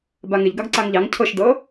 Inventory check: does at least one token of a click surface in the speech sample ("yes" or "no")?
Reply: yes